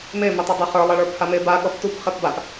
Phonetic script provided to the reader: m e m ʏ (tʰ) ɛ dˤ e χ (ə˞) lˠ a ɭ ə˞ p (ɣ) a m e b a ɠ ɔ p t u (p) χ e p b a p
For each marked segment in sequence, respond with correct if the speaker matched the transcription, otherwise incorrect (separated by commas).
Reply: incorrect, correct, incorrect, correct